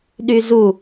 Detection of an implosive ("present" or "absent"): present